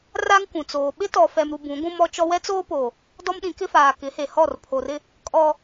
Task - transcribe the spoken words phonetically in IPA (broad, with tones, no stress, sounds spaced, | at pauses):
r a˦ ŋ kʷ ũ˨ t͡s oː˨ ɓ ɪ˦ t ɔ˨ f ɛ˨ m ɾ u˨ b ũ˨˦ ɡʷ ũ˦ m ɔ˦ t͡ʃ ɔ˦ w ɛ˦ t͡s oː˦ p o˨ | d ɔ˦ m ɗ ĩ˨˦ k ɪ˦ f aː˨ k ɪ˨˦ h e˨ h ɔ˦˨ r pʰ o˨ r ɪ˦ | kʼ ɔ˦